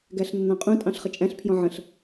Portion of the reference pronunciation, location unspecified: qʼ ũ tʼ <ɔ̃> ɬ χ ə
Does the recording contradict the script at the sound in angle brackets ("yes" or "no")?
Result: yes